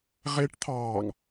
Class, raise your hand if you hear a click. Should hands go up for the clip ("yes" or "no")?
no